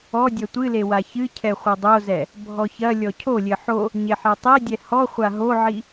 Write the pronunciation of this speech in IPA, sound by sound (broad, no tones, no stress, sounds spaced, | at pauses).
ɔ dʲ ɐ tʷ ɨ l e w a ç ɨ cʰ ɛ χʷ ɘ dˤ o z ɛ | bʱ ɔ ç ɐ lʲ ɔ cʰ o lʲ ɘ ħ o | ɲ e ħ ɛ tˤ e dʲ ɛ h ɔ χʷ a ɦ o ʕ i